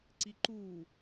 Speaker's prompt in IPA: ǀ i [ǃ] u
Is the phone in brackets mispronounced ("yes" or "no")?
no